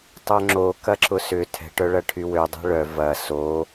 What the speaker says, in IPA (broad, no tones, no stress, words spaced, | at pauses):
tˤœŋ͡ǁo kɐǁʊsʏ tʰɛ̤ʈœɭɐ ʈʰywødˤɛ̤ ɭœ vɐ so